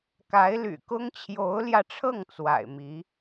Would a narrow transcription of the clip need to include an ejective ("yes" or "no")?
no